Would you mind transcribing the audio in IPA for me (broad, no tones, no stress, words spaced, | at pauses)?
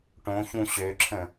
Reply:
ʈõçũ ɕøǁʰə̃